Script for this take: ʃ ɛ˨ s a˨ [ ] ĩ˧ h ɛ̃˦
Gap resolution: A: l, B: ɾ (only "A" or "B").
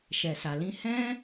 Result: A